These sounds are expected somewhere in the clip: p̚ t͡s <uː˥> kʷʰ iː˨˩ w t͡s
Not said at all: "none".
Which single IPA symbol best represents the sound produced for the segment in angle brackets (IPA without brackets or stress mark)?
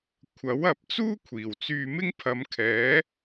uː˥